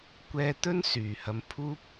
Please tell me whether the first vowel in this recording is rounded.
no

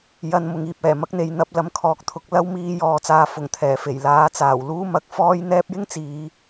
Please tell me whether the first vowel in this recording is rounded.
no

